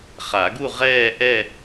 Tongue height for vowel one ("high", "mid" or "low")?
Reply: low